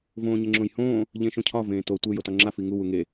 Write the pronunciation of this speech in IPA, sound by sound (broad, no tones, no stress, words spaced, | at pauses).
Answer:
võːɲeŋ͡ǁõjhõː | ʎẽʃõcʰɒ vẽːto tʷe jotɒŋ͡ǁa fiŋu wuŋe